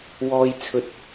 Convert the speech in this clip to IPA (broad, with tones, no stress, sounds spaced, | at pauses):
w ɔː˧ j t͡sʰ ɵ˨˥ t̚